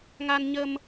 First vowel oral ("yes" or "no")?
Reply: yes